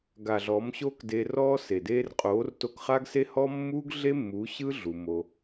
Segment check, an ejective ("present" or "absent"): present